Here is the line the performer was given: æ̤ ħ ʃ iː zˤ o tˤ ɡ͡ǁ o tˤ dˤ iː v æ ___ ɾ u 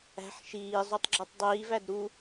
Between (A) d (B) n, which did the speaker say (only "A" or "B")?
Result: A